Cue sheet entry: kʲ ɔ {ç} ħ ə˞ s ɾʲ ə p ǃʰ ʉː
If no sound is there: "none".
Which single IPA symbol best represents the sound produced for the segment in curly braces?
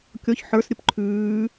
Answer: ç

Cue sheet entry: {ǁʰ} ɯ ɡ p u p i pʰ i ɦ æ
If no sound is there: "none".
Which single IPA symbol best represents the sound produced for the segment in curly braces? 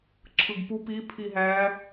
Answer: ǁʰ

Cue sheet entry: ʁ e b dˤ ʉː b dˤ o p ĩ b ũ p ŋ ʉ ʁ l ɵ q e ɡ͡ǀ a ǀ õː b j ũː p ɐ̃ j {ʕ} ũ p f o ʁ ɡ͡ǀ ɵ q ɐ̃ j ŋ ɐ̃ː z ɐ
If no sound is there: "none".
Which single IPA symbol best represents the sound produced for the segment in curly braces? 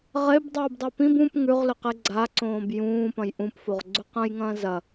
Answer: ʔ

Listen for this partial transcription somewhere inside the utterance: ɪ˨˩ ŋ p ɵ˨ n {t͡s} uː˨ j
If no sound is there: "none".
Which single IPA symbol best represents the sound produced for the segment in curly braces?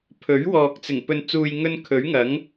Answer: t͡s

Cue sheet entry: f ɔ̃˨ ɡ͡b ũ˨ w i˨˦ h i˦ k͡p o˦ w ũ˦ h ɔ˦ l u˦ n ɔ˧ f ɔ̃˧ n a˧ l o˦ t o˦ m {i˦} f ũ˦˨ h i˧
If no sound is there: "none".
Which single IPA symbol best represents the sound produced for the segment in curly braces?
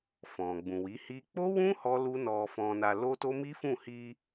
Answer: i˦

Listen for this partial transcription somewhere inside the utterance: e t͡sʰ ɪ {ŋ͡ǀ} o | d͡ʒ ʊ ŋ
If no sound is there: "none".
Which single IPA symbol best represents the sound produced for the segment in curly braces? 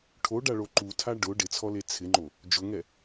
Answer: ŋ͡ǃ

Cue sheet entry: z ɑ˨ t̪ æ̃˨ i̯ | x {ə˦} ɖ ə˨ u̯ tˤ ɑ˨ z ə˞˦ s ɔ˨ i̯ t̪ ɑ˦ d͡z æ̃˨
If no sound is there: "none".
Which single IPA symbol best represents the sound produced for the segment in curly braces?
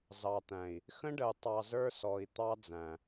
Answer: ə̃˦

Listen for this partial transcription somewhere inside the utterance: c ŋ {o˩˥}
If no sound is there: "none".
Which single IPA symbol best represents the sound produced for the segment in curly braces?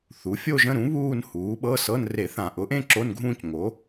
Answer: o˩˥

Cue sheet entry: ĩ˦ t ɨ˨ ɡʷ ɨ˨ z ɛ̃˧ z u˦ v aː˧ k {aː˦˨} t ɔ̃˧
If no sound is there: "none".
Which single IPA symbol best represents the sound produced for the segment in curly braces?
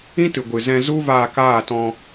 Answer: aː˦˨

